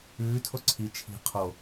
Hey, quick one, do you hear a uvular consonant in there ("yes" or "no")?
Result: yes